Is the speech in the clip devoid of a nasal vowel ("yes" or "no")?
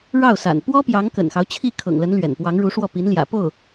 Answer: yes